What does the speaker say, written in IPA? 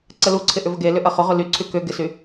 ǀ ə l u ǀʰ ɪ ʔ ʏ v ə ɡ e l ʏ ʔ ɐ χ ʊ ʁ ʊ l y ǀʰ y k ʏ ɡ ɪ s y

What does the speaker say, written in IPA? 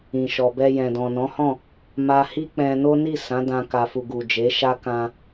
ĩ˨ ʃ ɔ˨ b ɛ˧ j ɛ̃˨ d ɔ̃˨ n ɔ̃˨˦ h ɔ̃˦˨ | m a˧ h i˦ k͡p ɛ̃˧ n o˦ n i˦˨ s ã˨˦ d ã˧ k a˨ f u˨ ɡ u˨ d͡ʒ e˨˦ ʃ a˦ k ã˧

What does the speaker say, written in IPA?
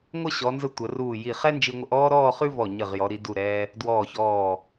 ŋʷ ə˥˧ ɕ ɔ˩˧ n z ə˧ tʷ ə˩˧ r uː˧˩ j i˧˩ χ ɛ˥ n d͡ʒ i˧ ŋʷ ə˧ ʔ ɔː˥ ɾ ɔː˥˧ χ ʉ˥ v ɔ˧˩ ɲ ə˧˩ ʁ j ɔ˩˧ ɾ i˩˧ d u˧˩ ɾ ɛː˧ | d w ɔː˧˩ ç ɔː˧˩

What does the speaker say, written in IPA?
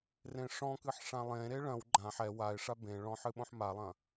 r ẽ ʂ ɔ̃ k ɨ ħ ʂ ã lˠ ẽ ɾ e ɭ ɐ̃ w ɡ͡ǃ ã ħ ɛ w a ɪ̯ ʂ a b ẽ ɭ ɔ̃ ħ ɨ ɓ õ ħ m a lˠ ɐ̃

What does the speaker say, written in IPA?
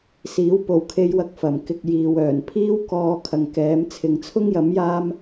s iː˨˥ w p o˨ w kʰ e˧ j w ɐ˧ k̚ f ɐ˨˩ m k ɪ˧ k̚ j iː˨ w œː˨˩ n pʰ iː˥ w k ɔː˧ kʰ ɐ˨ ŋ k ɛː˨˥ m t͡sʰ ɪ˨ ŋ t͡sʰ ʊ˥ ŋ j ɐ˨˥ m j aː˥ m

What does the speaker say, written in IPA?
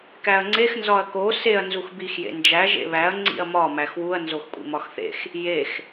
k æ ɐ̯ ŋ͡ǀ e x n z ɒ ɐ̯ k o s e ɐ̯ n z u x b i x j ḛ n d͡ʒ æ ʒ ḛ β æ ɐ̯ ŋ͡ǀ ḭ ɐ̯ m ɒ m æ x w u ɐ̯ n z o x kʷʼ ḭ m ɒ x θ ḛ x | j e x

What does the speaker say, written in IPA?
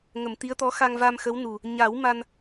ŋ ə˨˩˨ m t̪ i˧˥ ə̯ t̪ ɔ˧˥ x a˧ ŋ v a˧ m x ə˧˥ w n u˨˩ | ɲ a˨˩˦ w m a˧ n

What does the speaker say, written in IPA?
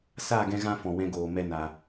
s a˦˨ ɡ ɛ̃˧ ɣ ã˧ f ɔ̃˨ w ɛ̃˧ ɡ oː˨ m ɛ˧ n a˨

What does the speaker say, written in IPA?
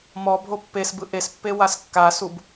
m ɔ bʱ o pː e s b ɯ ʔ e s pː e w a s kː a s u b

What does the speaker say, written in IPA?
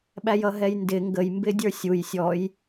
ɓ æ j ʌ ɦ ɛ j n d ɪ ŋ ɡ ə j m b ɪ dʲ ə˞ sʲ u j sʲ ɔ j

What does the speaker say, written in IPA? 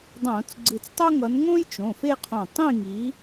dˤ õː˧˩˧ t͡s ɡ͡ǀ ɨ˧˩ t͡s tˤ o˥ ŋ ʌ˨˦ n ŋ õː˥ j t͡ʃ õ˩˧˩ f e˥˧ qʰ õ˧˩ tˤ ĩ˥˧ ŋ i˨˦

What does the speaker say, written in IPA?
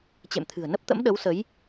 t͡ɕ ḛ˧˨ m t̪ʰ ɨ̤˨˩ ə̯ n ə˦˥ p̚ t̪ ə̰˧˥ m ɗ ə˨˦ w s ə˨˦ j

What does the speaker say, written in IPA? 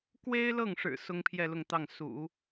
k w e˥ ɪ̯ l ɤ˥˩ ŋ ʂ ɻ̩˨˩ s ʊ˥ ŋ pʰ j ɛ˥˧ l ʊ˥˧ ŋ t̪ ɑ˥˩ ŋ s ṵ˨˩˦

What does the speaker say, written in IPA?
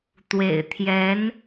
t̪ w ḛ˨˩ ɪ̯ t̪ʰ j ɛ˧˥ n

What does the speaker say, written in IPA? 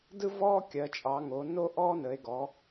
d ɯ˦ v ɔː˦ kʲ ɜ˩˧ t͡ʃʼ ɑ˩˧ ŋ o˩˧ n o˦ ʔ ɔː˦ n ə˩˧ e̯ ɡ ɔ˩˧

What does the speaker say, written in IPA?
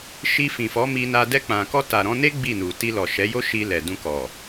ʃ i˧ f ĩ˨ f ɔ˨˦ m i˧ n a˧ d ɛ˧ k͡p ã˨ k ɔ˧ t a˨ ɾ ɔ̃˧ n e˦ ɡ͡b i˦˨ n u˨ t i˧ l ɔ˨ ʃ ɛ˨˦ j o˦ ʃ i˧ l ɛ˨ d ũ˧ k ɔ˨

